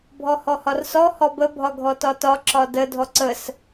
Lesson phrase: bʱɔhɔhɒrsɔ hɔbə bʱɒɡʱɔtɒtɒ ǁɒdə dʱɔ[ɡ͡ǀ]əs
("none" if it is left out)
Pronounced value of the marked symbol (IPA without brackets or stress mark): ǀ